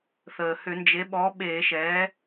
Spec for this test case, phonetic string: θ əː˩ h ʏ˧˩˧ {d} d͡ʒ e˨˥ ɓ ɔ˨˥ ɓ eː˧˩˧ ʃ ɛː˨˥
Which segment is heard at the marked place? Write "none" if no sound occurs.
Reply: n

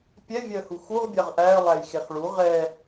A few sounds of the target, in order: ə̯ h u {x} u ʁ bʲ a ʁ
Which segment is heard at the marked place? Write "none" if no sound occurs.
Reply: x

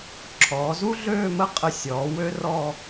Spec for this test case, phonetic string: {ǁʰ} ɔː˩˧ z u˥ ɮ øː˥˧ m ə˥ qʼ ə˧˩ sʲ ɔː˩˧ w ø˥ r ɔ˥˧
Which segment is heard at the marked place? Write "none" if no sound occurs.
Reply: ǁʰ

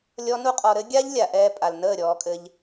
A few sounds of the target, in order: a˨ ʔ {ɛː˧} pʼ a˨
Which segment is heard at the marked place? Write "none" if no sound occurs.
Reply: ɛː˧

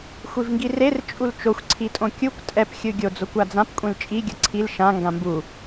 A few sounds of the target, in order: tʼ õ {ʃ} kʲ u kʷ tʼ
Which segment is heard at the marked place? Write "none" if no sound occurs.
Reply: none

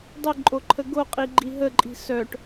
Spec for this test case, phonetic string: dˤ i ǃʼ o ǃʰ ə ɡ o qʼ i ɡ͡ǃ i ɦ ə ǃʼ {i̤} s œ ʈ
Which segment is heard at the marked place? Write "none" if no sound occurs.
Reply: i̤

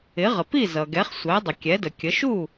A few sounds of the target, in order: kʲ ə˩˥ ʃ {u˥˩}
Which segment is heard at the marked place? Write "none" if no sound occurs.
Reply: u˥˩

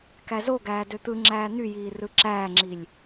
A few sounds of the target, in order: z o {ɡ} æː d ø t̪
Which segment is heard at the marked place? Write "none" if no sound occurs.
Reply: ɡ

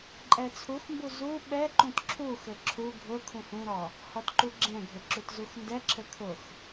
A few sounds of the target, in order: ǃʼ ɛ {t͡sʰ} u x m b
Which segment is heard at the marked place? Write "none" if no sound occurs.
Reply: t͡sʰ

